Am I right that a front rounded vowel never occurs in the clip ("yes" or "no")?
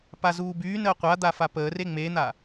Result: no